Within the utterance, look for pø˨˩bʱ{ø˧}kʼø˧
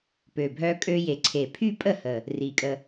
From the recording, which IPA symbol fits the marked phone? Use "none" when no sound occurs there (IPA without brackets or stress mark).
œ˧